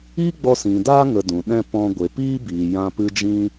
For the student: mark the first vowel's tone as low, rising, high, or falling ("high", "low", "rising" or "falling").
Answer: high